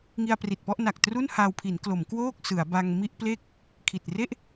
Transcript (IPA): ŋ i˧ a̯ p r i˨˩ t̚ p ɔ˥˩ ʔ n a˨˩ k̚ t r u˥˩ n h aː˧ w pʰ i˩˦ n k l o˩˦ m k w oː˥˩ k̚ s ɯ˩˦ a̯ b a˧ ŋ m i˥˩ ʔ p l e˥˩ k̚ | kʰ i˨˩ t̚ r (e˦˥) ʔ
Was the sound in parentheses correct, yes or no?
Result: no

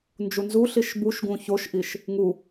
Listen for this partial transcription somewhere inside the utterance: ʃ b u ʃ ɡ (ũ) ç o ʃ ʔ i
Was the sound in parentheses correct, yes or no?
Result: yes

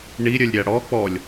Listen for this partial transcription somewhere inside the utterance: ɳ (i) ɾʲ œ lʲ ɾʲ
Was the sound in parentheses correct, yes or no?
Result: yes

